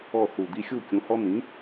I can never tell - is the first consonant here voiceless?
yes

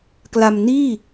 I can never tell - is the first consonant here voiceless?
yes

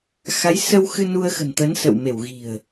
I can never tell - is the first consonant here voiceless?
yes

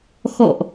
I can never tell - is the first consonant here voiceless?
yes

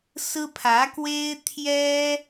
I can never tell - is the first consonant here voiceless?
yes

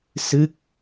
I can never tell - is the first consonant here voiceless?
yes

